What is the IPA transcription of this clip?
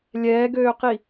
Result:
lʲ ɛː ɡ øː q i

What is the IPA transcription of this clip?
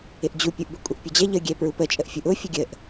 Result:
ɪ ʔ d͡ʑ u pʲ u ʔ b ɪ kʷʼ ə ʔ pʲ ʊ d͡ʑ ɛ ʎ ə ɡʲ ɛ p ɹ u p ə t͡ʃʼ ə ʔ fʲ u ʔ ʊ fʲ ə ɡʲ ə ʔ

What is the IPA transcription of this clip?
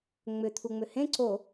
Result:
ŋ͡m ʏ t̪ʰ u ŋ͡m ʏ h ẽ ǀ o

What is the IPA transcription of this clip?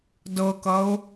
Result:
d ɤ k ʌ ʊ̯

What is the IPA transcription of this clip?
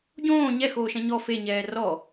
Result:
ɟ õː ɲ ɛ x oː ʃ ɛ̃ ɲ ɔ f e ɲ ɛː r ɔ

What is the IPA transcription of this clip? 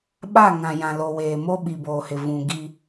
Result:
ɓ a˦˨ ŋ ã˨ j ã˨ l o˨ w eː˨ m o˦ ɓ i˨ b oː˨ h ɪ˨ v ũ˨ ɡ i˦

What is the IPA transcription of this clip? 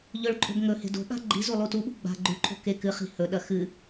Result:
ʎ ɵ ɭ ǃʼ o̤ b ŋ ɵ h e̤ d o̤ ɠ a̤ ɡ͡ǃ i z u lˠ u t u ɓ ṳ ɡ͡b a̤ ɡ͡ǃ ʉ ǃʰ o̤ k e k ɨ χ i̤ h ɵ ɗ ɐ x ɨ

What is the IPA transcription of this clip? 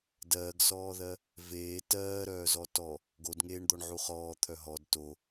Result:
d ɜː ɡ s ɔː ð ɜ | v eː t ɜː ɾ œː z ɔ t ɔ | ɡ o d ŋ eː ɳ d̪ ɔ ɳ ʕ u χ ɔː t̪ʰ œ ɦ ɔ d t o

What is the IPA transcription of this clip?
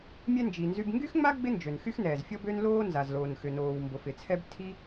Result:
mʲ ɛ˥ n d͡ʒ i˩ n z y˥ b ŋ ɡ y˥ x ŋ͡m a˥ ɡ͡b ɪ˥ n d͡ʒ ø˩ n x y˥ x n ɛː˩ z fʲ ɔ˥ b ø˥ n l oː˥ n z a˩ z l oː˩ n x ʏ˩ n oː˩ w m b o˩ f ɪ˩ t͡sʰ ɛ˥ b tʰ i˥

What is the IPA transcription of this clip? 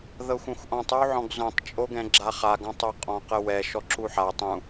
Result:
ð ɤ xʷ ɛ̃ xʷ ʔ ɔ̃ tˤ o w ʕ ɔ̃ ɡ z õ tˤ t͡ʃʼ o ɡ ɛ̃ ɡ͡ǁ a χ a ɡ ɔ̃ tˤ o qʼ ɔ̃ q ə w ɛ ʃ ɔ ǁ u ħ a tˤ ũ

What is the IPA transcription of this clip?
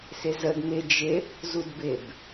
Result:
s ɪ z ə d m ɪ d͡ʒ ɪ | z u d b ɪ b

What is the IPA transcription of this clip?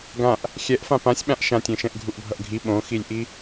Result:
ɡ ã ʔ | xʲ ɛ ʔ f ã p ã sʲ ɓ ã ʔ ʃ ã tʲ ẽ ʃ ɛ̃ ʔ ɡʱ u ʔ bʱ ʌ ʔ ɡʱ i ɓ õ x i lʲ ʔ i

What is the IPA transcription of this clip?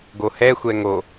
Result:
ɡ o h ɛ xʷ ɛ ŋ o

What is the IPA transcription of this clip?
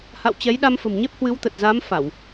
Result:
h a̰˧˨ w t͡ɕ ɛ˨˦ j ɗ a˧ m f ə̤˨˩ m ɲ e˦˥ p̚ h w ɨ˨˦ w t̪ ə˨˩ t̚ z aː˨˦ m f a˧˩˨ w

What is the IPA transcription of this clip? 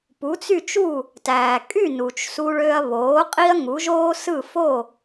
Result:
p u˩˥ t͡s y˥˩ t͡ʃ u˥˩ | t æː˩ kʼ y˥˩ n u˩ t͡ʃ s u˧ ɭ ø˧ ɐ̯ β oː˩˥ qʼ i˥ ɐ̯ ŋ u˩˥ ʒ oː˥ s ɯ˥˩ f o˥˩

